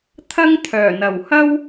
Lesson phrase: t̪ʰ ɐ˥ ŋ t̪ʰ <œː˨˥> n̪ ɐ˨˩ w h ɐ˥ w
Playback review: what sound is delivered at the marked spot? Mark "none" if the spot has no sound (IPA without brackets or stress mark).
œː˨˩